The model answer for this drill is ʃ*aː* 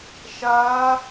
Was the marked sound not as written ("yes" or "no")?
yes